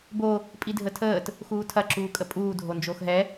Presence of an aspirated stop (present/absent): present